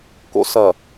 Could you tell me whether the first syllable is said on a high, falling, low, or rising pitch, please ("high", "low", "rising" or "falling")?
high